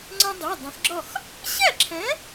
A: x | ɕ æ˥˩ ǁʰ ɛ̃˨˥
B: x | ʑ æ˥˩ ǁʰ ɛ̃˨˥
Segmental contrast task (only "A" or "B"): A